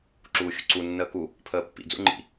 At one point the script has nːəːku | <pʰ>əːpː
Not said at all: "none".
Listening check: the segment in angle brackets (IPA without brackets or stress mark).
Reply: pʰ